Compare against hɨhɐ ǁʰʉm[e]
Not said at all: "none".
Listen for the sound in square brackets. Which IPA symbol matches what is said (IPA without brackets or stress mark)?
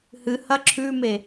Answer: e